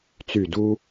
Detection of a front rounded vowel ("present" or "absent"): present